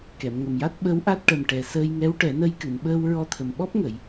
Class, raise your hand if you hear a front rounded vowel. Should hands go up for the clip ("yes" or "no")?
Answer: no